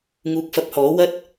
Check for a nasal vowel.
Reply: absent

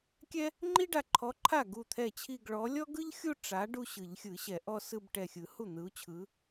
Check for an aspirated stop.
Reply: present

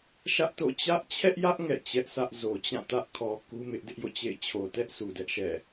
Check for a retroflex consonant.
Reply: absent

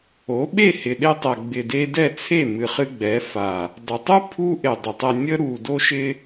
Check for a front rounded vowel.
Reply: absent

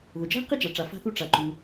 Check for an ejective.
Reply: absent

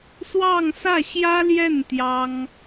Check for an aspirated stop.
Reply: absent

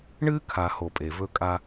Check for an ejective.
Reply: present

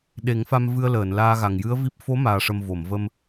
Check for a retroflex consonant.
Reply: present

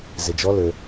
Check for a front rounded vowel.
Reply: present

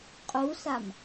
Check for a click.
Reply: absent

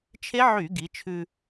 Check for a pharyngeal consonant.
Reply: present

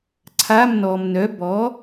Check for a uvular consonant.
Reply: absent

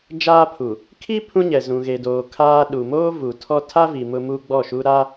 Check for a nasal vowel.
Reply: present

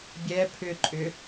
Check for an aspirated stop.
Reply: present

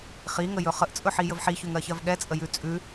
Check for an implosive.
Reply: present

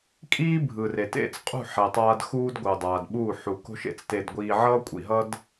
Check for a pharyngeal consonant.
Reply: present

